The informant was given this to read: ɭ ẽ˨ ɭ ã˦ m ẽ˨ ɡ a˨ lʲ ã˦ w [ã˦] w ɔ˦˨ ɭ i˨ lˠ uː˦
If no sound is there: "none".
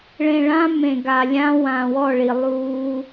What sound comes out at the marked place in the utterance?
ã˨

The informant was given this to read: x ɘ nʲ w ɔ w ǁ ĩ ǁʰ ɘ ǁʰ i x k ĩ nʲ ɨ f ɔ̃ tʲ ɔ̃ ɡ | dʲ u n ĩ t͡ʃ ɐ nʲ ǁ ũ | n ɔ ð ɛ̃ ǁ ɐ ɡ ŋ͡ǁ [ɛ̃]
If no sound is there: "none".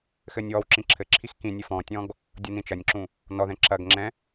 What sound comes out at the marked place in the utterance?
ɛ̃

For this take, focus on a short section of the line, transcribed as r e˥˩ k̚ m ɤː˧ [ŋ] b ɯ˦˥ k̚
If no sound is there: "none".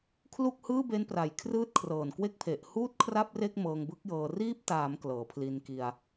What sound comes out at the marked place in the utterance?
ŋ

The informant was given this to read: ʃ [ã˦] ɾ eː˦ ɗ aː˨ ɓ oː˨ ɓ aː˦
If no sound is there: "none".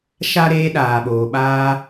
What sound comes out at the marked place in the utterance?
a˦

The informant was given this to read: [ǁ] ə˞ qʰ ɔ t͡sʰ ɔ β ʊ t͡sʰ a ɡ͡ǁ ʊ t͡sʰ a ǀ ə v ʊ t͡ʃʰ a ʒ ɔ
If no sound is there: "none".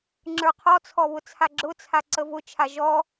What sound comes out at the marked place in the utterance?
ŋ͡ǁ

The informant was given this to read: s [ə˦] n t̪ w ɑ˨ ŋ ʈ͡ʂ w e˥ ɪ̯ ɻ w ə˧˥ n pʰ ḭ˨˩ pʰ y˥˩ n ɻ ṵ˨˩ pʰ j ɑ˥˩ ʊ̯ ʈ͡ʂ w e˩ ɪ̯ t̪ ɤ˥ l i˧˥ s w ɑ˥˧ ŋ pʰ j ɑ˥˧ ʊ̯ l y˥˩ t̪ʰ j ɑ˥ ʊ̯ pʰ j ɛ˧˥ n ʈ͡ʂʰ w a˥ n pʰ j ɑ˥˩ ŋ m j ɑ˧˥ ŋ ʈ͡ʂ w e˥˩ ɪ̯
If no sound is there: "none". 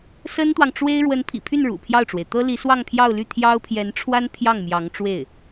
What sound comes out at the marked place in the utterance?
ə˥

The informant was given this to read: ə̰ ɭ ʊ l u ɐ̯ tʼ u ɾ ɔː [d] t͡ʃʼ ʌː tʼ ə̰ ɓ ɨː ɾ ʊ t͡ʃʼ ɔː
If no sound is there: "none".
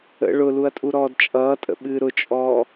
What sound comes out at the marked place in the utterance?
d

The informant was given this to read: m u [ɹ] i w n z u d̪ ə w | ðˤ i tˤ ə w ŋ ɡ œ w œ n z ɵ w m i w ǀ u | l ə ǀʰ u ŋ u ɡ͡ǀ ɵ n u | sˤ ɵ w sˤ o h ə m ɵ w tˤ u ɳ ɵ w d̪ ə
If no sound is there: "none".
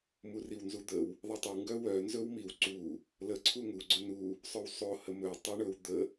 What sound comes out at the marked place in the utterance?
r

